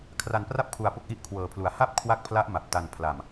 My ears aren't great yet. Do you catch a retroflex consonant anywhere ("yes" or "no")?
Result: no